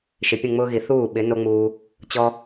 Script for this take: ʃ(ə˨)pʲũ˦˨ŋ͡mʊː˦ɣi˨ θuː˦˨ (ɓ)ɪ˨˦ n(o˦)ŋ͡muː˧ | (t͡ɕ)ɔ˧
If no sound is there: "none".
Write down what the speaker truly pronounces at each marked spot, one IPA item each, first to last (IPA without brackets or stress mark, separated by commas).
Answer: ɪ˨, ɓ, o˦, t͡ɕ